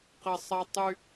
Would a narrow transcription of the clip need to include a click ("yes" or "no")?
no